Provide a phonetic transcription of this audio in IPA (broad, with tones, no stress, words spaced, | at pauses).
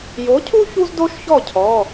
jo˨˥cʰu˥ çu˥zdo˥ʃçɔ˥˩cʰɔ˩˧˩